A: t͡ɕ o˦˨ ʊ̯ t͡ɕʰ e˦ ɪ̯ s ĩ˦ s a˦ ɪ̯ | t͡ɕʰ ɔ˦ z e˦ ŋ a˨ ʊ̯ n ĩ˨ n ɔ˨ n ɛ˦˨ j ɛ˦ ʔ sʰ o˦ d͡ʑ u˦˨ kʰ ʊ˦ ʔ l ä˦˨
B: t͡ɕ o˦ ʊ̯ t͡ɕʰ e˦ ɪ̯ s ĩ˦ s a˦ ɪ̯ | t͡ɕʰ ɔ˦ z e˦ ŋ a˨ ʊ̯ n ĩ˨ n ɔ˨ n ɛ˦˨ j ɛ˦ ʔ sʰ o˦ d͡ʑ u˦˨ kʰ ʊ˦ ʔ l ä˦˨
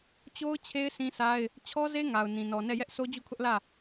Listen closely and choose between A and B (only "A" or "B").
B